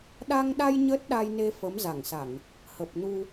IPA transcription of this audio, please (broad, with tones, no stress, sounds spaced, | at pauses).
ɗ a˧ ŋ ɗ a˧ j ɲ ə˦˥ t̚ ɗ a˧ j n e˧ f ə˨˦ m z a˧˩ ŋ s a˧˩˨ ŋ | h ə˨˩ p̚ n u˧